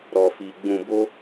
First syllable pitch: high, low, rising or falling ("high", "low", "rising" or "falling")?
low